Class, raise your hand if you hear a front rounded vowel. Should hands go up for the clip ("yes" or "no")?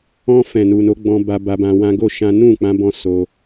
no